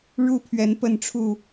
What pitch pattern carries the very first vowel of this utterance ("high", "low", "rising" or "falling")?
high